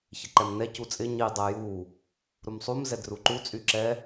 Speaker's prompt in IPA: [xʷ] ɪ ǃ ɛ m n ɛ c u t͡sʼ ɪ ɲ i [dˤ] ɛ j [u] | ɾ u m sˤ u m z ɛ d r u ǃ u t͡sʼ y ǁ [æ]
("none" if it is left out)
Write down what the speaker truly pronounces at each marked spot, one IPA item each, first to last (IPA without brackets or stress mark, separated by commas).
ç, dˤ, u, ɛ